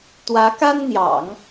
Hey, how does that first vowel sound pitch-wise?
rising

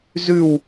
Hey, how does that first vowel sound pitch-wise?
falling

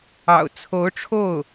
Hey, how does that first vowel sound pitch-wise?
low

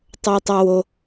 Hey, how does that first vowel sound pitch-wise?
low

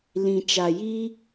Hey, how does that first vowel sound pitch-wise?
low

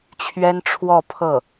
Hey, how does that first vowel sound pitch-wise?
high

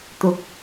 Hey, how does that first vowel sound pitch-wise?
low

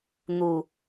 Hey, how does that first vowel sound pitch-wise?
low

